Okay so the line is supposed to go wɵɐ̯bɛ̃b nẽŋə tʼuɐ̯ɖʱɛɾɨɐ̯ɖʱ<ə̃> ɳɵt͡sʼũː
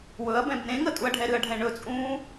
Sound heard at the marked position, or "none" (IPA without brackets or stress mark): ɛ̃